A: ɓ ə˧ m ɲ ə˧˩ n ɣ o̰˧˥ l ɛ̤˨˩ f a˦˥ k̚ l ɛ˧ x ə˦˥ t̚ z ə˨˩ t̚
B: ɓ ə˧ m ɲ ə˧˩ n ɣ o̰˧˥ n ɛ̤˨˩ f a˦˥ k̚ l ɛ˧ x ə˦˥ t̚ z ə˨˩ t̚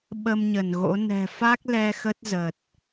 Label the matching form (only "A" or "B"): B